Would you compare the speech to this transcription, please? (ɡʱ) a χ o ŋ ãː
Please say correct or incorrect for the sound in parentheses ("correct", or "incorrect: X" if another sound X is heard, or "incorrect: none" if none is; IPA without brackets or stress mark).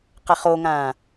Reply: incorrect: q